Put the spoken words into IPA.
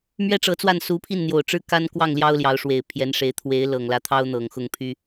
m ɥ ɛ˥ ʈ͡ʂ ɤ˧˥ t͡s w a˥˩ n s u˧˥ pʰ i˥˩ n n̪ j o˨˩ ʊ̯ ʈ͡ʂ ɻ̩˥˩ k a˥ n k w ɑ˥˩ ŋ l j ɑ˥ ʊ̯ l j ɑ˧˥ ʊ̯ ʂ w e˨˩ ɪ̯ pʰ j ɛ˧˥ n ʂ e˧˥ ɪ̯ t̪ʰ w e˧˥ ɪ̯ l ɤ˨˩ ŋ l ä˧˥ t̪ʰ ɑ˥ ʊ̯ n̪ ɤ˨˩ ŋ x ʊ˥˩ ŋ pʰ y˥

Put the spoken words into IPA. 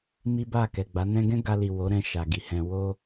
m i˦ b a˦˨ k ɛ˨ ɡ͡b a˨˦ n ɛ̃˧ ɡ ɛ̃˦ ɡ a˧ l i˨ w o˨˦ ɾ ɛ̃˧ ʃ a˨ ɡ i˨ h ɛ̃˧ w o˦

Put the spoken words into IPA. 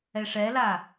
ɛ ʂ ɛ l a

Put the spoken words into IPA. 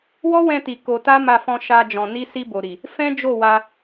w ɔ˦ w ɛ̃˧ t i˨ k o˧ t a˦ m a˧ f ɔ̃˧ ʃ a˧ d͡ʒ ɔ̃˨ n i˧ s i˧ b o˨ ɾ i˨ | f ɛ̃˦ d͡ʒ o˦˨ w a˧

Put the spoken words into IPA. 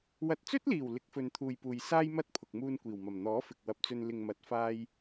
w ɐ˨ t̚ t͡s ɵ˥ t̚ l iː˨˩ w l ɪ˨˥ k̚ f ɵ˨ n t̪ʰ uː˨ j p uː˨ j s aː˥ j m ɐ˥ t̚ pʰ ʊ˨ k̚ m uː˧ n kʷ iː˨˩ w m ɐ˨˩ m n̪ ɔː˨˥ f ɪ˨ k̚ w ɐ˨ p̚ t͡s ɵ˧ n l ɪ˨ ŋ m ɐ˨˥ t̚ f aː˥ j

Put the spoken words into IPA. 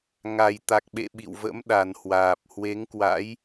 ŋ a˨˩ j t̪ a˨˩ k̚ ɓ ḛ˧˨ ɓ ḭ˧˨ w v ə̰˧˥ m ɗ a˨˩ n h w aː˨˩ p̚ h w e˨˦ ŋ k w a̰˧˥ j

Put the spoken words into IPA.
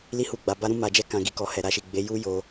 l i˦ h u˦˨ ɡ͡b a˧ b a˦ ɾ ũ˦ m a˧ d͡ʒ ɛ˦ k ã˧ ɡ i˧ k ɔ˧ h ɛ˨ ɾ a˧ ʃ i˨ ɡ͡b e˨˦ j u˦ j o˧

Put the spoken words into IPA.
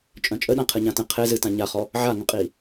t͡ʃʼ œ̃ t͡ʃʼ ə ɗ ã qʰ ɨ ɲ ã t ə̃ qʰ e z ɨ t ã ɲ a χ ɔ | ʕ a ŋ ə̃ qʼ i

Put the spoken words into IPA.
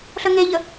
ɬ ə ŋ e ʎ ə

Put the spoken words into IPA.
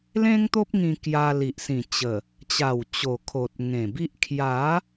l ẽ˦ ŋ t̪ o˦ p̚ ŋ ĩ˧ k j a˧ l i˨ ʔ s ĩ˨˩ t͡ɕ ə˨˩ | t͡ɕ a˨˩ w t͡ɕ o˨˩ kʰ o˨ t̚ ŋ ẽ˨˩ b i˦ ʔ kʰ j a˨˦

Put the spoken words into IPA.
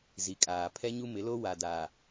z i˨ kʼ aː˨ pʰ ɛ˦ ɲ u˦ m ɪ˨˦ l o˦ w a˨ d a˨

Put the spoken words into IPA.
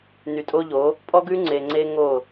n y˨ tʼ o˦ ʎ o˨˦ | pʼ ɔ˦ ɡ ʉ˦ ŋ͡ǀ e˨ ŋ͡ǀ e˦ ŋ o˦˨

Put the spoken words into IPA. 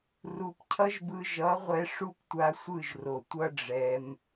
r u˨ p cʰ ʌ˦ ʒ b ɯ˧ ʒ ʌ˨˦ ʁʷ ɛ˧ ʂ u˦ p tʷ a˧ sʷ ɯ˦˨ ʒ r o˨ tʷ ʌ˦ ɖ͡ʐ ɛ˧ m

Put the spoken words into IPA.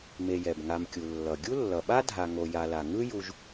m e˨ j ɛ˩ b ŋ a˨ m kʲ u˩ lː ʌ˩ ɡʲ u˥ lː ʌ˩ ɓ a˥ dʱ a˨ ŋ o˨ j a˨ l a˩ ŋ ɯ˥ j u˨ ʒ

